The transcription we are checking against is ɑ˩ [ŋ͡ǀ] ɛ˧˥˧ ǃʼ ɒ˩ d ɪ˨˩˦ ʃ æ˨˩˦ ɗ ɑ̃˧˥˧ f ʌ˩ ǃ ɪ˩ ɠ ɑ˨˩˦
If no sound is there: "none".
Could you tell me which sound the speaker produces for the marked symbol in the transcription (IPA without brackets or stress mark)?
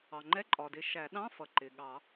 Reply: ŋ͡ǃ